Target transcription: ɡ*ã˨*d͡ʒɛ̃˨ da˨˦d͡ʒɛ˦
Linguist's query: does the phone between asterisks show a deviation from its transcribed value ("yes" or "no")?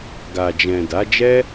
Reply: yes